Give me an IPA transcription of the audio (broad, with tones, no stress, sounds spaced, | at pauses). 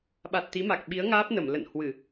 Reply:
ɓ a˨˩ t̚ t̪ i˨˦ m a˨˩ k̚ ɓ i˨˦ ə̯ ŋ aː˦˥ p̚ n ə˧˩ m l ə̰˧˨ n h w ɨ˧˩˨